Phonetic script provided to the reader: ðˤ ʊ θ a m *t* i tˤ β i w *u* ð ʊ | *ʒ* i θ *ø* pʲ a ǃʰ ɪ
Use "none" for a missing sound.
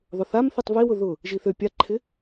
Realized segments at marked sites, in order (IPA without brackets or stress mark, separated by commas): θ, ʊ, ʒ, ø